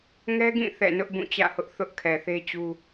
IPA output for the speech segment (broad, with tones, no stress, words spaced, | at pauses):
ŋɛ˦ɡĩ˦˨ θɛ̰˦˨nʊ˦ʔ bũ˦˨t͡ɕä̰˦˨hʊ˦ʔ θʊ˦ʔ kʰɛ˨θe˦t͡ɕu˦